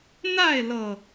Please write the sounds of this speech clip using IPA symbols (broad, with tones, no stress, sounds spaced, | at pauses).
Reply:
n̪ a˥˨ ɪ̯ l ɤ˨˩